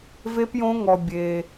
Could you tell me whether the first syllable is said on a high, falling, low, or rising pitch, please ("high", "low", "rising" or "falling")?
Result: high